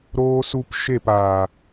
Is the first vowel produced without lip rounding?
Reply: no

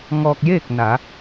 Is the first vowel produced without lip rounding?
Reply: no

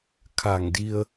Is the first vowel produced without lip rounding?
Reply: yes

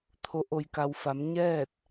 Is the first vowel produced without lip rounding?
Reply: no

